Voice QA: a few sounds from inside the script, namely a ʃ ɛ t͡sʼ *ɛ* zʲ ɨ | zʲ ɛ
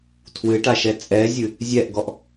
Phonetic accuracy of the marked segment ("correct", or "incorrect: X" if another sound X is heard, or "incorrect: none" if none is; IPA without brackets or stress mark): correct